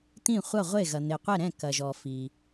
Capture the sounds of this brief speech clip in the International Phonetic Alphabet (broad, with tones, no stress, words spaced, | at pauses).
t̪ĩ˥˩ χʷɐ˥˩ʁʷe˥˩ ɣɐ˩n̪e˩qʷɛ˥˩ɾɛ̃˥˩ kɐ˩ʒɔ˩ fi˩